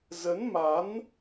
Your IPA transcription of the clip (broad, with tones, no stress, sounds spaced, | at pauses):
z ə˨˦ n m a˨˦ n